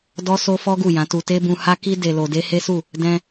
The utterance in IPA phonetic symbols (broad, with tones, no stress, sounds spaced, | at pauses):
d ɔ˦ s o˦ f ɔ˦ ɡ u˦˨ j ã˨˦ t u˧ t e˦ b ũ˧ h a˦ k i˦ d e˧ l o˧ d e˦ h e˦ s u˦˨ | d ɛ̃˧